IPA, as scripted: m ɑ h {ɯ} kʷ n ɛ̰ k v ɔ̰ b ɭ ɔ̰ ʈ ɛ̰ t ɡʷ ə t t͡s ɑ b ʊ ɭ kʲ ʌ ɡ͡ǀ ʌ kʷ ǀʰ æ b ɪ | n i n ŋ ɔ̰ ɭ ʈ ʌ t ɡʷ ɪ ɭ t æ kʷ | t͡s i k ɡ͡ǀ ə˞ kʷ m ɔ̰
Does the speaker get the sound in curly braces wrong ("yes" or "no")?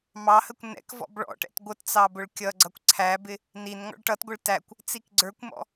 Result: yes